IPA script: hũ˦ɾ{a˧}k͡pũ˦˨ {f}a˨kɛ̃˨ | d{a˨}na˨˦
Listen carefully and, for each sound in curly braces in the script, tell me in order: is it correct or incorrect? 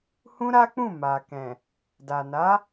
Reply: incorrect, incorrect, correct

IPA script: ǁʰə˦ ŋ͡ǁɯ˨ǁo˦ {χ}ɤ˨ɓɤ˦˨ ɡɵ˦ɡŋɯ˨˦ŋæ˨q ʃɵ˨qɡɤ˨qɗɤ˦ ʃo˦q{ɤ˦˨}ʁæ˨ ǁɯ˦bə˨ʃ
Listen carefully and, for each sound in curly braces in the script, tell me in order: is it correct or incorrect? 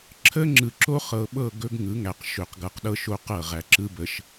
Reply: correct, correct

